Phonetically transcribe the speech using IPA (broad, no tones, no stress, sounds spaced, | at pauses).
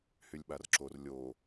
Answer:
h y lʲ ɓ a r ǁ o r lʲ o